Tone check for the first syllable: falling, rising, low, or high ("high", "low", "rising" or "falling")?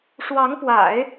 rising